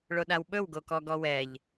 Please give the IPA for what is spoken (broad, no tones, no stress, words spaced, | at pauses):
ɭoɗawɓɵw ɡokɔɡɔwɛʎ